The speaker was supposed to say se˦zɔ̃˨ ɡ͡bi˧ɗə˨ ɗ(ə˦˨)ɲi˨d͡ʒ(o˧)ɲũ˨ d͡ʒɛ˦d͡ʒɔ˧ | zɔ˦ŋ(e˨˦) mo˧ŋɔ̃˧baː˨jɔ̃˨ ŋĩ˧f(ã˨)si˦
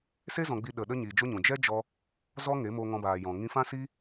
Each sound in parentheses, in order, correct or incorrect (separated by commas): incorrect, incorrect, correct, incorrect